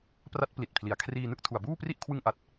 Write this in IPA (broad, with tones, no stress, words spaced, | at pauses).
pra˦˥t̚pli˨˩t̚pʰli˩˦a̯kʰriː˧ nɯ˥˩k̚ tʰu˨˩a̯buː˥˩pri˥˩ʔ kʰwɯ˧ŋʔa˨˩t̚